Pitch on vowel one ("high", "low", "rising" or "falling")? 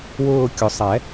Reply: falling